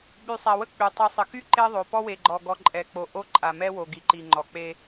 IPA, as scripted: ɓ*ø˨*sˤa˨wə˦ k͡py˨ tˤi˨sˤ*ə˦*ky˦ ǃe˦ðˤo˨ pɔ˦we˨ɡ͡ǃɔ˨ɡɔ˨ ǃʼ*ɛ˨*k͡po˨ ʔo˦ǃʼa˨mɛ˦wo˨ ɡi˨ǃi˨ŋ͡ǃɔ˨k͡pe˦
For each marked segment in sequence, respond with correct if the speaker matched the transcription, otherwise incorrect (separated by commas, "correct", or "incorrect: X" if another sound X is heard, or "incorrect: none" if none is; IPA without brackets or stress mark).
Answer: incorrect: y˨, incorrect: ə˨, correct